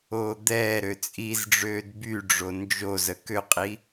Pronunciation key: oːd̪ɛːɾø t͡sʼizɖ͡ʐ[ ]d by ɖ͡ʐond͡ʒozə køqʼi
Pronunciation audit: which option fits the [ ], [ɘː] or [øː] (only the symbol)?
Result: øː